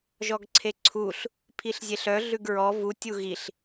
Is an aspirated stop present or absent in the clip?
present